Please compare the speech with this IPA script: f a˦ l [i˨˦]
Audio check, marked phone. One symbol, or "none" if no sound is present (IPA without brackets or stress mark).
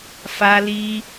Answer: i˦